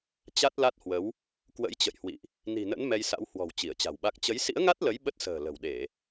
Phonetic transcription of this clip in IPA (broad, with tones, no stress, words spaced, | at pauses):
t͡ɕa˦˥t̚ la˦˥t̚hwə˨˦w | kwə̰˧˥jt͡ɕə̰˧˨jhwḭ˧˨ʔ | ni̤˨˩nə̰˧˥n mɛ˧jsa̰˧˥w hwɔ̤˨˩w t͡ɕi˧˩ə̯t͡ɕa̤˨˩wɓa˦˥k̚ t͡ɕə˨˦jsḭ˧˥ə̯ŋa˦˥t̚lə˨˦j ɓə˦˥t̚sə̤ː˨˩ lə̤˨˩wɗe˧˩˨